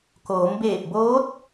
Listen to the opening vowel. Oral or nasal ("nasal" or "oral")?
oral